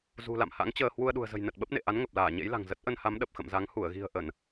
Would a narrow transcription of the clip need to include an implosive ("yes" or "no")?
yes